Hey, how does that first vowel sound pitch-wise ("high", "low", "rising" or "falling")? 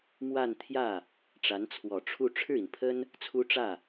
falling